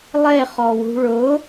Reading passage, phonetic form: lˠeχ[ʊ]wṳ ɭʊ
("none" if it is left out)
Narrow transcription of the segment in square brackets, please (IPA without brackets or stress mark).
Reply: ɔ